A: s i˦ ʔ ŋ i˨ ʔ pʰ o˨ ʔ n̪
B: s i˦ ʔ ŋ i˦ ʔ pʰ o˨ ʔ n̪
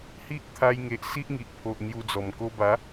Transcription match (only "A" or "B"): A